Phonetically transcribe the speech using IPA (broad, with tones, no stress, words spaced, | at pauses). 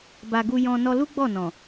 ba˨ ɡu˧ jɔ̃˧ nɔ˧lu˦ɡ͡bɔ˦˨nɔ̃˨